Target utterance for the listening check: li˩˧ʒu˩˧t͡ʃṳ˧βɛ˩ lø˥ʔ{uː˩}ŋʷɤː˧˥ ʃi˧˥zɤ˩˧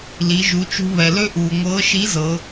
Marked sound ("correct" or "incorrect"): correct